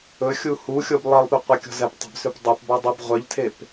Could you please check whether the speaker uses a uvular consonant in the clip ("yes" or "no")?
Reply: yes